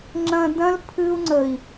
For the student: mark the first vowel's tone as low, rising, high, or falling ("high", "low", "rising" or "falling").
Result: low